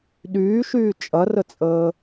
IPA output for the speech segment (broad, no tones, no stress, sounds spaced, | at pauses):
ɗ yː ʃ yː t͡ʃʼ ɐ r ə t͡sʼ əː